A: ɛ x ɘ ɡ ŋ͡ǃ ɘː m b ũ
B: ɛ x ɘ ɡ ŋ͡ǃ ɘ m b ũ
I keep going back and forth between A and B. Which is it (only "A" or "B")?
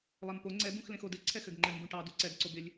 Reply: B